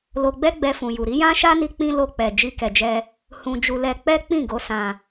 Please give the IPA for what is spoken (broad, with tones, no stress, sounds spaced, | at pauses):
l o˧ ɡ͡b ɛ˦ ɡ͡b ɛ˧ f ũ˨ j u˨ ɾ i˨˦ j ã˦ ʃ a˦ n i˧ k͡p ĩ˦ l o˧ k͡p ɛ˨ d͡ʒ i˧ k ɛ˨ d͡ʒ ɛ˧ | h ũ˧ d͡ʒ u˧ l ɛ˧ k͡p ɛ˦ k͡p ĩ˦˨ ɡ o˨˦ s ã˧